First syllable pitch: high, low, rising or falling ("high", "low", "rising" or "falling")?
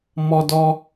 high